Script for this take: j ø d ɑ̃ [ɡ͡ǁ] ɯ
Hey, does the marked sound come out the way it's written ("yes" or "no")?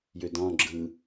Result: yes